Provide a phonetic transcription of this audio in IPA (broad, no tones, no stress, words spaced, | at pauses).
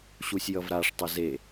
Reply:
ɕusʲjʌvɾaʂ tˤəze